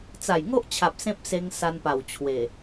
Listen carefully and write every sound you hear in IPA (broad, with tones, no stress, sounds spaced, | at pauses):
t͡s a˨˩ j ŋ o˦ ʔ t͡ɕʰ a˨ p̚ s ẽ˦ p̚ s e˧ ŋ s a˧ n p a˨˩ w t͡ɕʰ w e˨˩